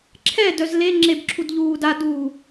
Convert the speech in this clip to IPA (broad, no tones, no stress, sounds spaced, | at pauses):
ǁʰ ɛ d œ z l e ŋ͡ǁ e b ǁʰ u d ʎ uː d a d uː